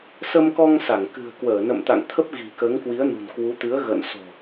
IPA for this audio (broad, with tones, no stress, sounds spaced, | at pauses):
s ə˧ m k ɔ˧ ŋ s a˧˩ ŋ k ɨ̤˨˩ ə̯ k w əː˧˩ n ə̰˧˨ m t̪ a̰˧˨ ŋ t̪ʰ ə˦˥ p̚ ɣ i̤˨˩ k əː˨˦ ŋ k w i˨˦ ə̯ n ṳ˨˩ n k w u˨˦ t̪ ɨ˨˦ ə̯ ɣ ə̰ː˧˨ n s o̤˨˩